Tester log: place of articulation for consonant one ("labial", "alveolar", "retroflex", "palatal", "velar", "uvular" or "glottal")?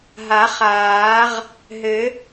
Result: glottal